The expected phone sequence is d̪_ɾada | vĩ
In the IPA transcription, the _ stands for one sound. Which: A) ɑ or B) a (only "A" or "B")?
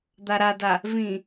B